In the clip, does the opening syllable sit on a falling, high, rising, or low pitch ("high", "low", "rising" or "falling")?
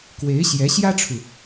rising